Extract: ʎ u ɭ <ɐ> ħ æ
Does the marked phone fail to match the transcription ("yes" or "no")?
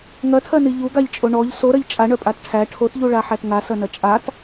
yes